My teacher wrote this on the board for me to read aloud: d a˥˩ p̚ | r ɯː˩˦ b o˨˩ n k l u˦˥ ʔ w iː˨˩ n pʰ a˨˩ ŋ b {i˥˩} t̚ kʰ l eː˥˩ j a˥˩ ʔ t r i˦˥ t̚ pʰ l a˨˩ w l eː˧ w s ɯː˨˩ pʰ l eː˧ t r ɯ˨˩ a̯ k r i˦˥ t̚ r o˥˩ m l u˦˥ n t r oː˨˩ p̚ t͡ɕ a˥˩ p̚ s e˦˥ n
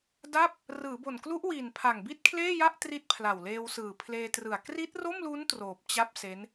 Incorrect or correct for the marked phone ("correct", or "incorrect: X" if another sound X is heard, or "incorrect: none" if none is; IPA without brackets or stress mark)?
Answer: correct